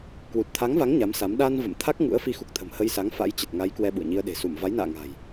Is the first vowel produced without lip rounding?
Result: no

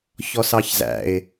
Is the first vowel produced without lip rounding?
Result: no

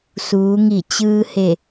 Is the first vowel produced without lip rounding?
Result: no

